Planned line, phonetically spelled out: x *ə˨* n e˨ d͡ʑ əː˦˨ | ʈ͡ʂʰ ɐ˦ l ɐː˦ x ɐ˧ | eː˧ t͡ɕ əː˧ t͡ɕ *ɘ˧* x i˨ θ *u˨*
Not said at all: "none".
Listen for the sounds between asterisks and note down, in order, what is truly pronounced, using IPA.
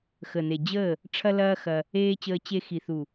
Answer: ə˨, e˧, u˨

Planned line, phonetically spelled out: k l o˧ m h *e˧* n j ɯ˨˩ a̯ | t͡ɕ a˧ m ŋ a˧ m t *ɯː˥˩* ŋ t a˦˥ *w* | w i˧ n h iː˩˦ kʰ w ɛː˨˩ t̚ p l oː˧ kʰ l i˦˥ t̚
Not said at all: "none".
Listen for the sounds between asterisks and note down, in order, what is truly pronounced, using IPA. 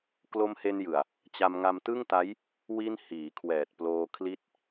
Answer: e˧, ɯ˥˩, j

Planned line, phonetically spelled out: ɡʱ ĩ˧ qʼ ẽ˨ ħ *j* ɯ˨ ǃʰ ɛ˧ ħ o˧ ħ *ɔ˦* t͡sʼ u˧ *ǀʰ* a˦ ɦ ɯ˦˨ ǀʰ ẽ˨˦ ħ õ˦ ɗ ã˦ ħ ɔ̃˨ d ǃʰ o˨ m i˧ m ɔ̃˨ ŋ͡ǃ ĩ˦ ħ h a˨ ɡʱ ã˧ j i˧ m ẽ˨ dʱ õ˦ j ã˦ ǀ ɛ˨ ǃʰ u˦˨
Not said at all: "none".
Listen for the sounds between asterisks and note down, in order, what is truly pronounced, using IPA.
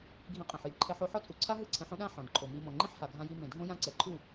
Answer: j, ɔ˦, ǀʰ

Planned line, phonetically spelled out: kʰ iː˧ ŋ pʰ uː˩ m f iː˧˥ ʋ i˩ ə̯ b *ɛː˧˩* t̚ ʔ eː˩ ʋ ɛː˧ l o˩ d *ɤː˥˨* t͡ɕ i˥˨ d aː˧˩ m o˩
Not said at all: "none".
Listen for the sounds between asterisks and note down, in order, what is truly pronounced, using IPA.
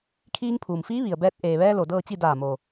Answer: ɛː˧, ɤː˥˨

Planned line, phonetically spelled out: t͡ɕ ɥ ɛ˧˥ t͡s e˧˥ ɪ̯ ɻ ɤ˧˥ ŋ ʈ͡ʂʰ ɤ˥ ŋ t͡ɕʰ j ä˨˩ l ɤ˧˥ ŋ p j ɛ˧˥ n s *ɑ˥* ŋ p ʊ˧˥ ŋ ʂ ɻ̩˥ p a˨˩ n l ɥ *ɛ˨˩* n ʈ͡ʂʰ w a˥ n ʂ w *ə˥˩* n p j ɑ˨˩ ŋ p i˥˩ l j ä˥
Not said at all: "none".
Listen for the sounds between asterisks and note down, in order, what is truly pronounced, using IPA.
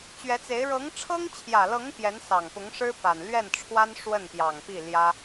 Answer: ɑ˨˩, ɛ˥˩, ə˥˩

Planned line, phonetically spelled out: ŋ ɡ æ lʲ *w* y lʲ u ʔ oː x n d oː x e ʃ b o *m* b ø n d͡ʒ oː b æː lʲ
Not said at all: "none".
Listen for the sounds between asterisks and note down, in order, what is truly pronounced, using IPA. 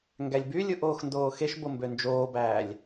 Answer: b, m

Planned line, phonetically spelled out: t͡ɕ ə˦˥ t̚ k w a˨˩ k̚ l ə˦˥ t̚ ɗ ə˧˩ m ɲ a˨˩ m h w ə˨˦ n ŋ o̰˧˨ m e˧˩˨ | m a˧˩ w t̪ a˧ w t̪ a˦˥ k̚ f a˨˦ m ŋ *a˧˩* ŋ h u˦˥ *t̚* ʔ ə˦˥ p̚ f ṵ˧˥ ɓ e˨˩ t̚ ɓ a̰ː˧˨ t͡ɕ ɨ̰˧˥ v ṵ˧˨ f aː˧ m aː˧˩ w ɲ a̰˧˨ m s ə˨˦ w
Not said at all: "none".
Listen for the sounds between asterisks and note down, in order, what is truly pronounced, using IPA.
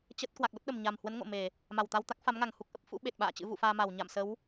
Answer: a˧˩, k̚

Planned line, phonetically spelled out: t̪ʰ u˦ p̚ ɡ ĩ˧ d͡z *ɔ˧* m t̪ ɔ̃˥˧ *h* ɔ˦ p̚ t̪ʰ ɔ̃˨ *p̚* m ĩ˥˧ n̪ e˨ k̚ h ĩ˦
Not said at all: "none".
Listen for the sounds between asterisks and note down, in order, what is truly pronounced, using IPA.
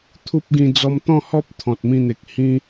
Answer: ɔ˧, h, t̚

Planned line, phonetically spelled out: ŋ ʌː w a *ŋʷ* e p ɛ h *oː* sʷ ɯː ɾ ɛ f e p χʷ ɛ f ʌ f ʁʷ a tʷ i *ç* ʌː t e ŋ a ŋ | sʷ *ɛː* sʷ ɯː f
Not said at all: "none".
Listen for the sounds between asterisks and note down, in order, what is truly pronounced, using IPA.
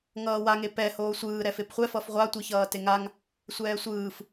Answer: ŋ, oː, ç, ɛː

